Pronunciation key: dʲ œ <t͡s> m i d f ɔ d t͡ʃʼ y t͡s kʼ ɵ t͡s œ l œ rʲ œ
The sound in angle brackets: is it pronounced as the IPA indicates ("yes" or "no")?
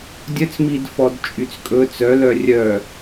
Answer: yes